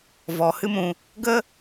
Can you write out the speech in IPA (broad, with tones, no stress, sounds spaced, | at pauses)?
v ɔ˨ h ɨ˦ m ũ˧ | ɡ ə˦